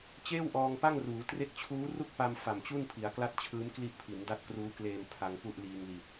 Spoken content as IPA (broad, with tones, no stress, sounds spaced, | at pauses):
t͡ɕ eː˥˩ w ʔ ɔː˧ ŋ p a˥˩ ŋ r uː˩˦ t r e˦˥ k̚ t͡ɕʰ uː˦˥ r u˥˩ k̚ p a˧ m f a˨˩ m t͡ɕ u˥˩ n pʰ i˩˦ a̯ k l a˥˩ t̚ t͡ɕʰ ɯː˦˥ m k l i˦˥ ʔ pʰ i˩˦ n d a˦˥ t̚ k r uː˦˥ k l eː˧ m pʰ a˧ ŋ p u˥˩ ʔ l iː˧ ŋ l i˨˩ t̚